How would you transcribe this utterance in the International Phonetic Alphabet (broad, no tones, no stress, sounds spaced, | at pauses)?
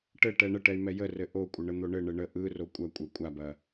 ʈ ɘ ʈ ɛ ɳ ə ʈ ɛ y̯ m ɛ j ə r ɘ ʔ o kʷʼ ə ɳ ə n̪ o ɳ ɘ ɳ ɘ ɳ ə ʔ ɯ r o kʷʼ ɐ kʷʼ ɛ kʷʼ a b ɐ